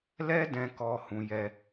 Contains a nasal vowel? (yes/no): yes